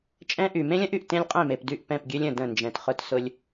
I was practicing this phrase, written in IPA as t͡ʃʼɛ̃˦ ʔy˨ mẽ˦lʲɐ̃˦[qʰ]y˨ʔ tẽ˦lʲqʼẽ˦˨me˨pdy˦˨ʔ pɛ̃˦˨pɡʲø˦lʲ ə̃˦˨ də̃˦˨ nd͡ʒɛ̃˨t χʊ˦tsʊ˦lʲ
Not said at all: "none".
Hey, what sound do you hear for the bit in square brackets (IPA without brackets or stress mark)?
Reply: ʔ